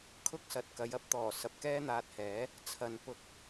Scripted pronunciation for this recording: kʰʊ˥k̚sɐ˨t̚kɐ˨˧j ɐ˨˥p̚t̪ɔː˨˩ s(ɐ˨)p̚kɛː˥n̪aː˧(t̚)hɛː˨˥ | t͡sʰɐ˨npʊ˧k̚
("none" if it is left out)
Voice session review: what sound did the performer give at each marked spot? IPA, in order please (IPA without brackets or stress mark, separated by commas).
ɐ˨, t̚